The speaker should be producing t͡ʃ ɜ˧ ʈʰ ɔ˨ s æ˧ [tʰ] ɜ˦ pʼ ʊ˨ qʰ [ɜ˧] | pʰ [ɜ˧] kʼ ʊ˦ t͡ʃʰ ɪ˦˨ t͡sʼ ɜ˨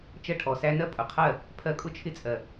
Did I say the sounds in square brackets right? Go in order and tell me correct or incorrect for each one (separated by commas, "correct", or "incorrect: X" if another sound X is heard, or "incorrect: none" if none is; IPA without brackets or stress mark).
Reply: incorrect: n, incorrect: ɜ˦˨, correct